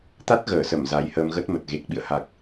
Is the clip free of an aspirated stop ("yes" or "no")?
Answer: yes